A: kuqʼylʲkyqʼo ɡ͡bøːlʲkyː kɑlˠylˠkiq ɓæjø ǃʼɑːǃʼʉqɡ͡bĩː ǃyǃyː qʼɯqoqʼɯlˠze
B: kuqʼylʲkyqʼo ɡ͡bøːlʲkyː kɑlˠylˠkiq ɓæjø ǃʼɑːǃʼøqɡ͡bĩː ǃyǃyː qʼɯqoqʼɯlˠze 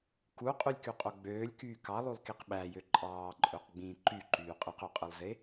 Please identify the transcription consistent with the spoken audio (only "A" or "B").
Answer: B